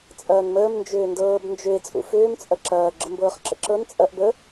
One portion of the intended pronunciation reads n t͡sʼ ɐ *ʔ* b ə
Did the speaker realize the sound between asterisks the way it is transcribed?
yes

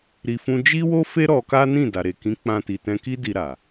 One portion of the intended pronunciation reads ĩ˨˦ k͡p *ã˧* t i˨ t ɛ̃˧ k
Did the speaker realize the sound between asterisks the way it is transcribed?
yes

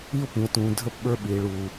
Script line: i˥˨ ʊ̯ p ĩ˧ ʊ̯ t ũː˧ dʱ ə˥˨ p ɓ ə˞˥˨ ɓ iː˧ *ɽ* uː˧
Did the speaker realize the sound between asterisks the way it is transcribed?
no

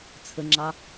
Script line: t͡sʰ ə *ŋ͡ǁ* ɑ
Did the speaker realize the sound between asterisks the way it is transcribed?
yes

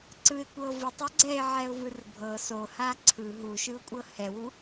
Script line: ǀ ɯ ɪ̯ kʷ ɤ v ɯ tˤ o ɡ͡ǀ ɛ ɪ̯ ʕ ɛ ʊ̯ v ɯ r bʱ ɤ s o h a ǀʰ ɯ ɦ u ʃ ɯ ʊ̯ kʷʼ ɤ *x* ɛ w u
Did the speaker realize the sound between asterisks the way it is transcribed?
no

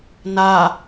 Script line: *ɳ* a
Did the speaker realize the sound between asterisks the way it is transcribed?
no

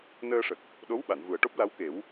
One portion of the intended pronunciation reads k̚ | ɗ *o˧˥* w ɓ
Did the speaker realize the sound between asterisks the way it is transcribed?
yes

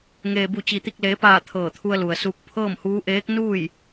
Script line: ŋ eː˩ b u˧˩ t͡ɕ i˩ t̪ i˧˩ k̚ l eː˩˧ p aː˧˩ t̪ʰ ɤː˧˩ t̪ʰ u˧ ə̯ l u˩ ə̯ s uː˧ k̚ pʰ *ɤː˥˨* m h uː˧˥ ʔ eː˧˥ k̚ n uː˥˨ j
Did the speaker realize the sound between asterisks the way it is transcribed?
yes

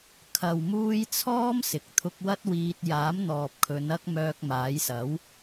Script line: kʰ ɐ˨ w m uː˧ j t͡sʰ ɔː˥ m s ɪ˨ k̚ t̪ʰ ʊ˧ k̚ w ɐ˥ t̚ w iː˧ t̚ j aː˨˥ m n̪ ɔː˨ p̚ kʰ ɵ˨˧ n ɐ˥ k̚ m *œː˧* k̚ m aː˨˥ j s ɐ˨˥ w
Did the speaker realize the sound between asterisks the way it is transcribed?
yes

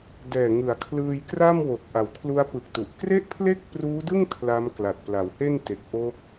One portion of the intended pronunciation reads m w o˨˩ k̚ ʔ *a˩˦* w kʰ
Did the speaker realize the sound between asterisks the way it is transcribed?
yes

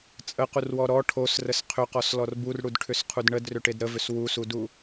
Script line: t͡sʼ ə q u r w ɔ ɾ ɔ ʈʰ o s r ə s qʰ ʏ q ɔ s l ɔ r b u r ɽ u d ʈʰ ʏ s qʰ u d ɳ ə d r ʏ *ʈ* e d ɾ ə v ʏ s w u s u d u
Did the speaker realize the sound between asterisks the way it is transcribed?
yes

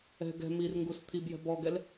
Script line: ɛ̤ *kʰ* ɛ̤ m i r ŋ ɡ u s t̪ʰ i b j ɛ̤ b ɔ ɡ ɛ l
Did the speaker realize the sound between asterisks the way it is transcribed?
no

